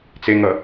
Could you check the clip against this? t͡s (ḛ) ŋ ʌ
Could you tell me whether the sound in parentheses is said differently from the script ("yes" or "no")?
yes